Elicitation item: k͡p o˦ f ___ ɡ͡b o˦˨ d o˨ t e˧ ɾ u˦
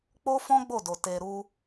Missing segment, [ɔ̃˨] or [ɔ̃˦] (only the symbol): ɔ̃˦